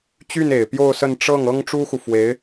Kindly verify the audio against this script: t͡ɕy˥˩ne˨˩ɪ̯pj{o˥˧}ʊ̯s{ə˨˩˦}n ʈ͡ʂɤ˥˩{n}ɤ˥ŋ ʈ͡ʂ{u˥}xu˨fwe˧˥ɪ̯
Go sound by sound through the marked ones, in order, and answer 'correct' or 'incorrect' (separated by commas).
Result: correct, incorrect, incorrect, correct